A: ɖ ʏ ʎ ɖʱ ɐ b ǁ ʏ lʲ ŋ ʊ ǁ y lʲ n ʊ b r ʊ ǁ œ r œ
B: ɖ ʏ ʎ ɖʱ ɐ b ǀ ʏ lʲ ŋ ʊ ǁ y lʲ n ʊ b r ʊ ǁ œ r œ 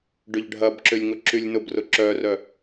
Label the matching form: A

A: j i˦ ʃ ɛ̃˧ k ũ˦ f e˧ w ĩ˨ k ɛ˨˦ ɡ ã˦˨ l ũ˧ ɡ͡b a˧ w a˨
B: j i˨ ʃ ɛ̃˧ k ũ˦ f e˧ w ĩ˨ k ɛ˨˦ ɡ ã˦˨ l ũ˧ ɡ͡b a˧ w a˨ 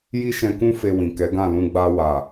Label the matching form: A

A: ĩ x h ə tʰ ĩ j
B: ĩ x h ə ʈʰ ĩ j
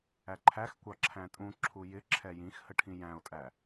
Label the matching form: B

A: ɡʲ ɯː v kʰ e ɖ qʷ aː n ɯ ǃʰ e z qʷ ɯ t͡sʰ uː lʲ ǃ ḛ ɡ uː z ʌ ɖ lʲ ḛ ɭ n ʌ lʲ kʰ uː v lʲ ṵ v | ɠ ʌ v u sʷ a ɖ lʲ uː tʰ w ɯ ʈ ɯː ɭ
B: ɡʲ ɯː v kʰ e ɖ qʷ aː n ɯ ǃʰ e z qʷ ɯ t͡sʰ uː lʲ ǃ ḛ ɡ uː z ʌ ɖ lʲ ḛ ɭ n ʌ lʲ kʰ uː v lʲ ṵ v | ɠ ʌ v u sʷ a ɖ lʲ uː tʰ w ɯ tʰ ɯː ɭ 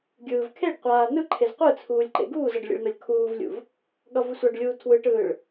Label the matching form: A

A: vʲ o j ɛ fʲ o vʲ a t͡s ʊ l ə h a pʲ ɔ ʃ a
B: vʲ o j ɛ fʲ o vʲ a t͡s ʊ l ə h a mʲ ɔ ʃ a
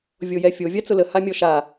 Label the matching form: B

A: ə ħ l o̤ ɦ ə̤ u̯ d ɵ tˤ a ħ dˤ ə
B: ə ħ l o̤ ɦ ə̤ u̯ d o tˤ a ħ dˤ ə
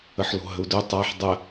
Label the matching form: A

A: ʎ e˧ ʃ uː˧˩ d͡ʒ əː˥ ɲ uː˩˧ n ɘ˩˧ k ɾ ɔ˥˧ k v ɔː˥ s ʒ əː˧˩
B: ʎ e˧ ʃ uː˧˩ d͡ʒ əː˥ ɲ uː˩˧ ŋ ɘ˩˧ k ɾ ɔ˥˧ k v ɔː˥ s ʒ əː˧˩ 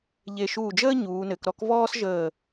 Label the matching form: A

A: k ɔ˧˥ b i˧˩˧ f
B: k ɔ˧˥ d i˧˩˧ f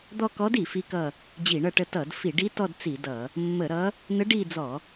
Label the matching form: B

